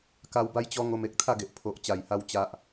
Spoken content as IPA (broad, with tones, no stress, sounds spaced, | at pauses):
k a˧ w b a˦ j t͡ɕ ɔ˦ ŋ o˧ m e˨ k̚ t̪ʰ a˥˧ ɡ e˨ ʔ pʰ o˨ ʔ t͡ɕ a˨˩ j h a˧ w t͡ɕ a˦ ʔ